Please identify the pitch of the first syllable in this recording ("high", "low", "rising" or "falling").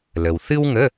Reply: low